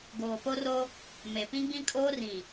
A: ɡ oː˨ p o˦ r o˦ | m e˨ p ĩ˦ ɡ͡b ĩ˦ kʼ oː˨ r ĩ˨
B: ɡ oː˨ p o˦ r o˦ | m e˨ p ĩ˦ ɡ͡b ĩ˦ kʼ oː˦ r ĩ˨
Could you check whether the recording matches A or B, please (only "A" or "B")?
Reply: B